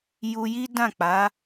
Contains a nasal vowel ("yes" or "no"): yes